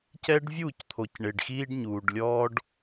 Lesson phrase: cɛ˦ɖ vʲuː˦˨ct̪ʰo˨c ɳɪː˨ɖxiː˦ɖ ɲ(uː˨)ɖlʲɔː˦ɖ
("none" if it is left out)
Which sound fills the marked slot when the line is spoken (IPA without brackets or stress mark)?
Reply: uː˨